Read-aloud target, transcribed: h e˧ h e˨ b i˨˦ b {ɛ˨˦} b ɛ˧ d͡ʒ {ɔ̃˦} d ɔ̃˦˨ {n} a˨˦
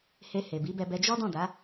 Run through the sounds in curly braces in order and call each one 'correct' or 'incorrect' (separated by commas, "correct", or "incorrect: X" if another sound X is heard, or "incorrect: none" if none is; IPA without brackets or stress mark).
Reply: incorrect: ɛ˧, incorrect: ɔ˦, incorrect: d